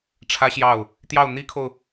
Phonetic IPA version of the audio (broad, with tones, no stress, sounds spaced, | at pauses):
ʈ͡ʂʰ ä˥ ɕ j ɑ˥˩ ʊ̯ | t̪ j ɑ˥˩ ʊ̯ n̪ i˥ kʰ o˨ ʊ̯